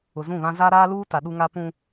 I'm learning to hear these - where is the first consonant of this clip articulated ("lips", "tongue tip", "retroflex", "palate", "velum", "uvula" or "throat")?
tongue tip